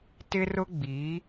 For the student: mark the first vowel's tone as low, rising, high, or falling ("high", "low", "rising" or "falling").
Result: high